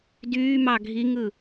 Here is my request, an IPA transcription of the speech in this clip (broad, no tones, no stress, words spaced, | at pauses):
dyːmɑ ɡʱiŋɯ